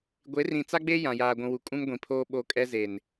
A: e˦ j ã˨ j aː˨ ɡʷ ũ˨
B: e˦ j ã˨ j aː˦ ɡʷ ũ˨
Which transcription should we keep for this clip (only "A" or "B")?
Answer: A